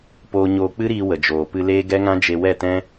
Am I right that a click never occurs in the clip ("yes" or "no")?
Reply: yes